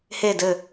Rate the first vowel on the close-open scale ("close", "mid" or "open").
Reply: mid